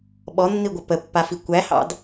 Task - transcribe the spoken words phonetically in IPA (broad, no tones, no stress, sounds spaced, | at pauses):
ɓ ɔ nː i ɡʷ ə p ə pː a f i kʷ æ h ɑ̰ d